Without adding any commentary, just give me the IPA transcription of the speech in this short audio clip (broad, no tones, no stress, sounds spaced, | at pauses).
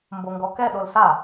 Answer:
m b o ŋ ɡ ɔ k ɛ ɗ o l s a